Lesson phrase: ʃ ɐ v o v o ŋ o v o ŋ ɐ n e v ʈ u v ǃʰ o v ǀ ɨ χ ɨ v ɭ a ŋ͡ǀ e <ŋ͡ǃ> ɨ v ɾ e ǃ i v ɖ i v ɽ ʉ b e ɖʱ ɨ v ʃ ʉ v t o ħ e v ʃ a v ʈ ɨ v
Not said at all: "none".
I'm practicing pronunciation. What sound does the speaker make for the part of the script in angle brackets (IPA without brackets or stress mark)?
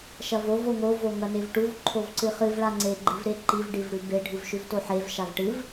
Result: ɡ͡ǃ